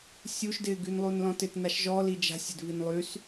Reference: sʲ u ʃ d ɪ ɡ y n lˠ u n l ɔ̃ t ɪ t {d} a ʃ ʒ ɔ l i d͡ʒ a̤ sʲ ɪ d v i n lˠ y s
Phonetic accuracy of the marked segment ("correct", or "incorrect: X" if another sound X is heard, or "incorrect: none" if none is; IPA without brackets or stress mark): incorrect: n